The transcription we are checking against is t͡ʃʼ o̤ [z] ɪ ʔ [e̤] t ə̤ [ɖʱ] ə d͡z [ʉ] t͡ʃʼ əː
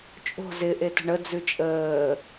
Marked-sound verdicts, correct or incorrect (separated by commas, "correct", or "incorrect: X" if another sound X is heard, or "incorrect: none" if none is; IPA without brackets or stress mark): correct, incorrect: e, incorrect: ɳ, correct